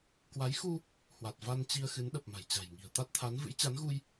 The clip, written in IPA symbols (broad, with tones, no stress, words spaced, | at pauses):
kwa˨˦jxu˧ | hwa˨˩t̚va˧nt͡ɕi˧ə̯ xɨ˨˦nɗə˨˩p̚ ma̤˨˩jt͡ɕa̤˨˩jŋi̤˨˩ə̯t̪a˦˥t̚ t̪ʰa˨˦nvɨ̰˧˥jt͡ɕa˨˦nɣu˧j